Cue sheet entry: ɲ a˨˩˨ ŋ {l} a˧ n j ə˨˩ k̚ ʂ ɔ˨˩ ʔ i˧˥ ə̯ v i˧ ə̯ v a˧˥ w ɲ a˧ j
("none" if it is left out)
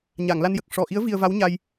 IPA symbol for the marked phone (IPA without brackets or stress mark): l